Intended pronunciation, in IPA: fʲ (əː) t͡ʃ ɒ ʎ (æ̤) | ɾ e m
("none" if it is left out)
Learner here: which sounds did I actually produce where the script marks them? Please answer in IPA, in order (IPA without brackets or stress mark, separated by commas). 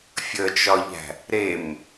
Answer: ə, æ̤